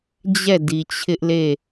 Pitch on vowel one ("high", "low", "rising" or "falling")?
falling